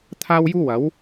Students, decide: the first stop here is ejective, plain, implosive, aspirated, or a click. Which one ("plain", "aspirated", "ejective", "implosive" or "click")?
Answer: aspirated